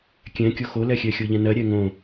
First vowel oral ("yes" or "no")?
no